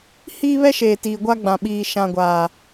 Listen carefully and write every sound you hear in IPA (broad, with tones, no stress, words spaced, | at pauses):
hiː˦βɛ˦ʃeː˨ tiː˨ɡʷa˦ ɡ͡bã˨ɓiː˨ ʃã˨ɡʷaː˨